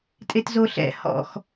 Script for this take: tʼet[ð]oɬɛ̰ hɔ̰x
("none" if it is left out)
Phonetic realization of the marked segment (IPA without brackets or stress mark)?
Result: z